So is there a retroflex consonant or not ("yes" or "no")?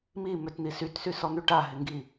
yes